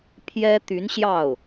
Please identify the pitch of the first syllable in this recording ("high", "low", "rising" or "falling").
high